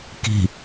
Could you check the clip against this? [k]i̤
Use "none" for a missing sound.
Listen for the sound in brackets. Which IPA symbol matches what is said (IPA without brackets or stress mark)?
k